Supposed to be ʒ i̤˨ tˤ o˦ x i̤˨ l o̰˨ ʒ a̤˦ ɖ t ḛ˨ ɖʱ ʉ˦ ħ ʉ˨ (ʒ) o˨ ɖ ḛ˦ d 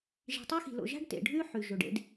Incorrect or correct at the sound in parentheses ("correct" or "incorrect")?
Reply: correct